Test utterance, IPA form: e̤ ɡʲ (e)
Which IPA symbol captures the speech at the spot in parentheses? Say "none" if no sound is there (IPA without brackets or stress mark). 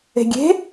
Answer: e̤